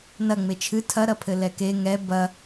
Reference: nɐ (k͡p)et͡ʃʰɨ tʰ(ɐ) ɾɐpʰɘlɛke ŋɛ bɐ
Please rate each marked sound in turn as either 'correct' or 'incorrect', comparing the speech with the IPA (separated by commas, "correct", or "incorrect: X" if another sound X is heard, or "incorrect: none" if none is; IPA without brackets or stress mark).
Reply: incorrect: ŋ͡m, correct